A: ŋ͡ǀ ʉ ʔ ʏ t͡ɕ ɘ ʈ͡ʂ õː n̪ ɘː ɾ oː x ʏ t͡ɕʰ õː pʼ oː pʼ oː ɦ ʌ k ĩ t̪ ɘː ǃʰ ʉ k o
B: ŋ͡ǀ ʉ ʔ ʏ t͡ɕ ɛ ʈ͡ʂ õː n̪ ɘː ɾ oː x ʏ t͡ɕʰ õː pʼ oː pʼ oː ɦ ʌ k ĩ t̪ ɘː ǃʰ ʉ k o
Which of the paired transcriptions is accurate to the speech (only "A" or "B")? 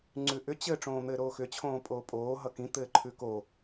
A